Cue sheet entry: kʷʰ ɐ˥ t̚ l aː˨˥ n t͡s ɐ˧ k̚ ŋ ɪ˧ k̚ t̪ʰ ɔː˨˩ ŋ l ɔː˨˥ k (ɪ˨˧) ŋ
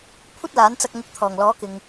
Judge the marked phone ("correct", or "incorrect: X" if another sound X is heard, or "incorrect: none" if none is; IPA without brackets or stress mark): incorrect: ɪ˨